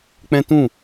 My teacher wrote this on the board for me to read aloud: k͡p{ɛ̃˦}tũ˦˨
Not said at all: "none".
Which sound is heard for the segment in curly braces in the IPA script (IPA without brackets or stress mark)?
ɛ̃˦